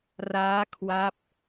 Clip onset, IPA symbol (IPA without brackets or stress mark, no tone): r